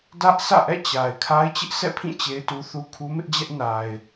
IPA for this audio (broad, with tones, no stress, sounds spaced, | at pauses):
d ä˦ ʔ sʰ ä̰˦˨ ʔ ɛ̰˦˨ t͡ɕ a˨ ɪ̯ kʰ a˦ ɪ̯ t͡ɕ ɪ˦ ʔ sʰ ɛ̰˦˨ pʰ ĩ˦˨ t͡ɕ e˦ ɪ̯ t u˦ θ u˦ kʰ u˦ m ɪ˦ ʔ d͡ʑ ɛ˦ ʔ n a˨ ɪ̯